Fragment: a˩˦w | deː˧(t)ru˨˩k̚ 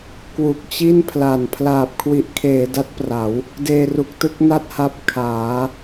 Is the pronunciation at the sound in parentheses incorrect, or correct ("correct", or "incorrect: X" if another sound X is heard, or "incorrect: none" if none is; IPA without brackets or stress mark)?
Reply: incorrect: none